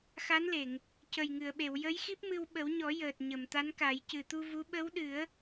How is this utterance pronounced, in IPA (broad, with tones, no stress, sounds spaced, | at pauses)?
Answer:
x a˧˥ n l e˨˩˨ ŋ | c ə˨˩ j ŋ ɨ˨˩˨ ə̯ ɓ e˨˩˨ w j ə˧˥ j x i˦˥ p̚ m ɨ˧ w ɓ ə˨˩˦ w ɲ ɔ˨˩˦ j əː˨˩ t̚ ɲ ə˨˩˨ m t̪ a˧˥ n k a˨˩˦ j c ɨ˨˩ t̪ u˧ v u˧˥ ɓ ə˧˥ w ɗ ɨ˨˩˦ ə̯